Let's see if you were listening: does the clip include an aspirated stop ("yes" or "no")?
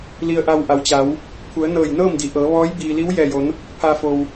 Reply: yes